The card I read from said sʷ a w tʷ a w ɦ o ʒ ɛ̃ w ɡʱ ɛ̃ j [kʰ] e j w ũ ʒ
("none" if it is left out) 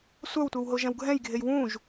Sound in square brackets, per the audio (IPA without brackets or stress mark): ɡʱ